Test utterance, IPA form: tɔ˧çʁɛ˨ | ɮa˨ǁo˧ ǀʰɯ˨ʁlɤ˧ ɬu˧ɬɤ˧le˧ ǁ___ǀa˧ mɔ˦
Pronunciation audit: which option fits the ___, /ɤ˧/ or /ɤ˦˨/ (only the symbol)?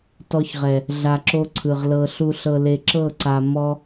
ɤ˦˨